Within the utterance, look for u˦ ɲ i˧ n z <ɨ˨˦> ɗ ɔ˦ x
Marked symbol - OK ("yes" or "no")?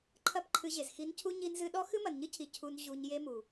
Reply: no